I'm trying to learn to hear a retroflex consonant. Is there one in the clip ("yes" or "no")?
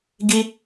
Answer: no